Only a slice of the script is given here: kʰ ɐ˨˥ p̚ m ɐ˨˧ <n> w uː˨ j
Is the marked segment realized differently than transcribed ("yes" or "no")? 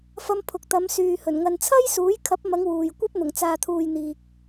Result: yes